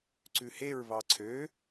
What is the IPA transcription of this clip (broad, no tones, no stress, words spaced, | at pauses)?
ǀʉheɹ βɑǀʰø